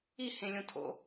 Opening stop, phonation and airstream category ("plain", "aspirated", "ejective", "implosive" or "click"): aspirated